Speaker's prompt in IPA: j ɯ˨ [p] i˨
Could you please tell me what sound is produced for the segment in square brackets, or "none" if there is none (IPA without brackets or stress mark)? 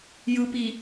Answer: p